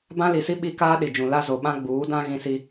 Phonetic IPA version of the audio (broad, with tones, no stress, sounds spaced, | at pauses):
b ã˦ l i˨ s i˦ ɓ i˦ k aː˦ ɗ i˨ d͡ʒ ũ˨ l a˦ z o˨ ɓ ã˦ ɡ͡b uː˨˦ d ã˦ ɣ ĩ˦ s i˦